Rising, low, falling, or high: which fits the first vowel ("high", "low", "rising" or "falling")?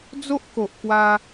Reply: high